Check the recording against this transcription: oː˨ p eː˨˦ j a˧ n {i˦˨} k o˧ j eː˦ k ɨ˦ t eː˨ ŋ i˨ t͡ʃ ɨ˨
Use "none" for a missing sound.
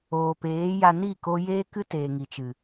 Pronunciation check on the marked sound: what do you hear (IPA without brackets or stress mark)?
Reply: i˦˨